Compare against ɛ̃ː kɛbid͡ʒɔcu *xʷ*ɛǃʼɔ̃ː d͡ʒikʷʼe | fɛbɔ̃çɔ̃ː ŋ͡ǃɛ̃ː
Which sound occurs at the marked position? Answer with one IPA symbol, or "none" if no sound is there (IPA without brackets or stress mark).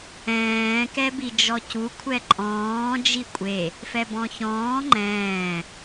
kʷʰ